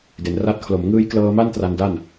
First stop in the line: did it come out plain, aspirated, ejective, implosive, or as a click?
plain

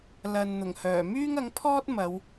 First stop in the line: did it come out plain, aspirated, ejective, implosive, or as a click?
aspirated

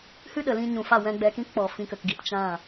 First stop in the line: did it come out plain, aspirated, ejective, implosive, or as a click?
implosive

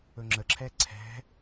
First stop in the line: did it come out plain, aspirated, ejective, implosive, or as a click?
click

